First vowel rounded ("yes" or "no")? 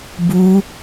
yes